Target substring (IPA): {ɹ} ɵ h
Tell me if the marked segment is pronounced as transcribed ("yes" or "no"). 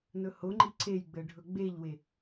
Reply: no